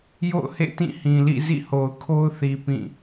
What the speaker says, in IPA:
jo̰˦˨ʊ̯hḛ˦˨ tĩ˦˨hĩ˨lḭ˦˨ zḭ˦˨ho˨ʊ̯kʰo˦ʊ̯θi˨ pĩ˦˨

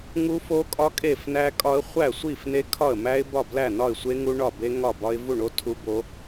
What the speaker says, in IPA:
ŋu˦˥fo˦˥kʼɒ˦˥ kʼe˥˩f næ˦˥kʼɒ˦˥ə̯ χʷæ˥˩sʷi˥˩fne˦˥ kʰɒ˥˩ə̯mæ˦˥ɪ̯bɒ˥˩blæ˥˩ nɒ˥˩ɪ̯sʷe˦˥ ŋu˦˥ɳɒ˥˩be˦˥ ŋɒ˥˩bɒ˦˥ɪ̯ vu˥˩ɳo˦˥ tʰu˦˥bo˦˥

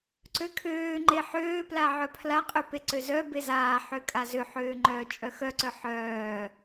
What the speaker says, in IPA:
ǀøkʰøːŋ͡ǃe ħøːpla ʕœpʰlaqʼø peǀøzœbe zaːħø kʼazøħøː ŋ͡ǃœːt͡ʃʼœxœǀœ ħœː

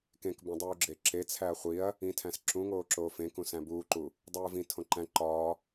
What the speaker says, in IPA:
kẽkbõdˤuːɡ͡ǁe ǁet͡sʰæɐ̯ χʷiɐ̯ | ĩtʰæ̃s ǁũŋoːǁoːf ẽkũ sæ̃buːǃu | dˤuːvĩ tʰõǃæ̃ ǃɒː

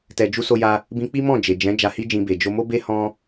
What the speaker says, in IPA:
tɛ˧d͡ʒu˦so˦ ja˧ | bĩ˧k͡pi˦mɔ̃˦˨ d͡ʒe˨d͡ʒɛ̃˨˦ d͡ʒa˧hi˦d͡ʒĩ˧be˨ d͡ʒo˧mo˦be˦ hɔ̃˦

